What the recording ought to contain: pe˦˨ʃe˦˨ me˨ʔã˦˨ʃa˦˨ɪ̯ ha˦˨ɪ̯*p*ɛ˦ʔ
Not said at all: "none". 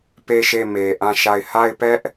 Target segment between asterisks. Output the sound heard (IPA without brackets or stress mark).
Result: p